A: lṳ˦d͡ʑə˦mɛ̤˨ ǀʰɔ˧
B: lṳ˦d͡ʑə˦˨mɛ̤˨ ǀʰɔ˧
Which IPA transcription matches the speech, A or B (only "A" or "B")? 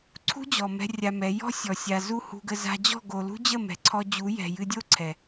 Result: B